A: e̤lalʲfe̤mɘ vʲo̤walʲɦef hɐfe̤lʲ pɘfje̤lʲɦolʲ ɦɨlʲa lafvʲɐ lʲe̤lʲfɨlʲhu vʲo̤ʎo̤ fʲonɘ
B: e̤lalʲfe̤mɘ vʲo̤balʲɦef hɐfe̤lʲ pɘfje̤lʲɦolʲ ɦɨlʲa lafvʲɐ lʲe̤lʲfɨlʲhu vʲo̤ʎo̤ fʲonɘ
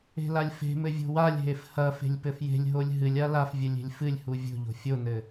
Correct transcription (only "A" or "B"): A